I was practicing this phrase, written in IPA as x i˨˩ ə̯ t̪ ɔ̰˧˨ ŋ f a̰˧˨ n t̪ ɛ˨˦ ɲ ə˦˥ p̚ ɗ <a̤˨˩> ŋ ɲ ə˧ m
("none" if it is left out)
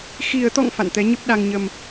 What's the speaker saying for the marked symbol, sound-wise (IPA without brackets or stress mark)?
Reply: a˧